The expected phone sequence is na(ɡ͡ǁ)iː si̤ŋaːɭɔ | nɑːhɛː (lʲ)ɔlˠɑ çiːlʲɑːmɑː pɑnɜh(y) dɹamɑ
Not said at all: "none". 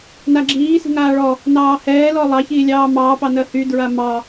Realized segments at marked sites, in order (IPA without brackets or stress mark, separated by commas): ɡ͡ǁ, l, y